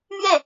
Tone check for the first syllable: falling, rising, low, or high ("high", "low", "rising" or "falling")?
falling